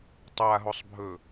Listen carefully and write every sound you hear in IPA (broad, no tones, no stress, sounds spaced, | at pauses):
tˤ a ɦ o sˤ bʱ ɵ